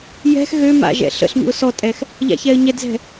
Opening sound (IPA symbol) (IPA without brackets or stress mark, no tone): j